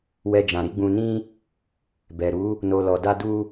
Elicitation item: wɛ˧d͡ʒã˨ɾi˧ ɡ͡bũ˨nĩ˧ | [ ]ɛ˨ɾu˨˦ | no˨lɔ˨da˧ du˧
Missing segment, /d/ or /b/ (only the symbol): b